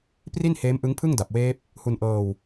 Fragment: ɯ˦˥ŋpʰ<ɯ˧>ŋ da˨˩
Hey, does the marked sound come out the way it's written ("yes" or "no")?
no